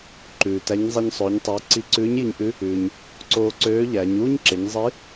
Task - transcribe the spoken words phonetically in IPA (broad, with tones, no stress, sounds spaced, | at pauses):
ǃ ʉː˩ t æ˧˥ ɲ zˤ e˧ ɲ sˤ ɵː˩˧ ɲ tˤ ʉː˩˧ ǀ i˧ ǀ ʉː˧˥ ɲ j i˧ ɲ ʔ ʉ˧˥ | ʉː˩ ɲ | ǀ oː˧ ǀ øː˧˥ ʎ æ˩˧ ɲ uː˥ ɲ ǁ e˩˧ ɲ zˤ i˧˥